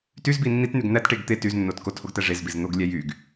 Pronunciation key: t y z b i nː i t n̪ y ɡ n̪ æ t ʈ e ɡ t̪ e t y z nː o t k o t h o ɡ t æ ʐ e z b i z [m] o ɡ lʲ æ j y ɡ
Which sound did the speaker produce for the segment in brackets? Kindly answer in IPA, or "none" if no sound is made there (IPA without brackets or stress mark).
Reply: n̪